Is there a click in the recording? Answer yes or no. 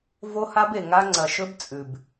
yes